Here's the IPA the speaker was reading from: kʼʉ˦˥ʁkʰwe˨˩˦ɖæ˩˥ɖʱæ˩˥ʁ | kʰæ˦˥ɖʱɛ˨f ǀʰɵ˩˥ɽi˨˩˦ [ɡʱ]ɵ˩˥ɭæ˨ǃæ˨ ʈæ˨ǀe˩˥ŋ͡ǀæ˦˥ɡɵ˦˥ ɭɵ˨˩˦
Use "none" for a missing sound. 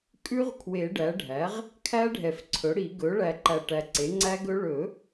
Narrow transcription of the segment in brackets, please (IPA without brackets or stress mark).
ɡ